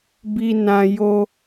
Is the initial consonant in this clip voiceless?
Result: no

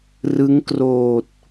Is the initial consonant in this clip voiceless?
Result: no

